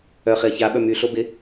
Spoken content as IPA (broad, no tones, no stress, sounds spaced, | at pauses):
œ χ ɪ ɐ̯ ç a ɓ œ m y ɬ o b ɪ